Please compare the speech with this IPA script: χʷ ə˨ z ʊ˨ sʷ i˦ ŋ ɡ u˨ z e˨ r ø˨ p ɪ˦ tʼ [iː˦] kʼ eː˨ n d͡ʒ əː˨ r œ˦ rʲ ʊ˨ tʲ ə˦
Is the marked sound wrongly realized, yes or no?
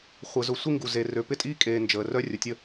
no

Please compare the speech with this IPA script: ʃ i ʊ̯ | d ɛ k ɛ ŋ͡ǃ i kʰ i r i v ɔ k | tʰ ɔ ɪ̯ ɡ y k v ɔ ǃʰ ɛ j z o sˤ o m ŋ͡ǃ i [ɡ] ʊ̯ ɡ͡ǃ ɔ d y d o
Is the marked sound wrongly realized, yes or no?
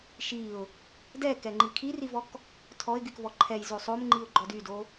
yes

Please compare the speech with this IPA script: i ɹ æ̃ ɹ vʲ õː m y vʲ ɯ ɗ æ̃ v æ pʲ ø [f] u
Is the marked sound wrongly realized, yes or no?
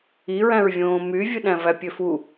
no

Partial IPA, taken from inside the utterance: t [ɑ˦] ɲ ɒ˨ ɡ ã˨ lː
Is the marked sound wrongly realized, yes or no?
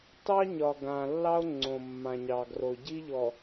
no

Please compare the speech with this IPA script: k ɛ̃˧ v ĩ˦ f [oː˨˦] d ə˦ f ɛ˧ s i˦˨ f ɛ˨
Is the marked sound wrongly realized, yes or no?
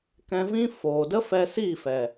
yes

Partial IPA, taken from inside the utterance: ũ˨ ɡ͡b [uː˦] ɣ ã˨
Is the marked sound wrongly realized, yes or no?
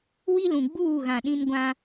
yes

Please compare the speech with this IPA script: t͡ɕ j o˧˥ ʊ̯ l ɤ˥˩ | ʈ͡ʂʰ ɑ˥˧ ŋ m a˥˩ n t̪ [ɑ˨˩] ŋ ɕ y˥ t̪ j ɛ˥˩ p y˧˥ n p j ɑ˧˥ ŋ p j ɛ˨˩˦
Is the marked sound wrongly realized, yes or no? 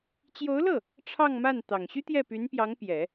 no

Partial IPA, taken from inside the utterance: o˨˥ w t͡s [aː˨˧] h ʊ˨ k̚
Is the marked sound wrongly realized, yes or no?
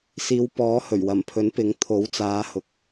no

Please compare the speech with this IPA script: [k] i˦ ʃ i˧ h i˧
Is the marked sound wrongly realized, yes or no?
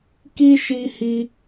no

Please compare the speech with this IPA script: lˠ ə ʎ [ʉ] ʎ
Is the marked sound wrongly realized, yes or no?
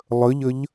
yes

